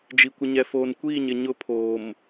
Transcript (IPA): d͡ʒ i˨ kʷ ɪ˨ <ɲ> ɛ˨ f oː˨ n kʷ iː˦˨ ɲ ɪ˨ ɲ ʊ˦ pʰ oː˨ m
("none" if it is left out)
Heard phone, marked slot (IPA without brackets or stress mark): ɲ